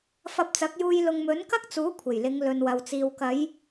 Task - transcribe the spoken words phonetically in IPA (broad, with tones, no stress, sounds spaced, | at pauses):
f ɐ˧ p̚ t͡s ɐ˨˥ k̚ j uː˧ j l ʊ˨ ŋ m ɵ˨˥ n k ɐ˥ k̚ t͡s uː˨˥ kʷʰ e˨˩ j l ɪ˨˧ ŋ l ɵ˨ n w ɐ˨ w t͡s iː˨ w k ɐ˨˧ j